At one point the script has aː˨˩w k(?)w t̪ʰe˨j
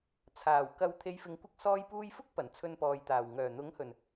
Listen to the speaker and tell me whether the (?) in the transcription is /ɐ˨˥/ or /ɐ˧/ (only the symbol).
ɐ˧